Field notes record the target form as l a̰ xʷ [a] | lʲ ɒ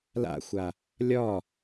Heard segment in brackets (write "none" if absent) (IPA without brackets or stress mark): a